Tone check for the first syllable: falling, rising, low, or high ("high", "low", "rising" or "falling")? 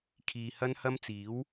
low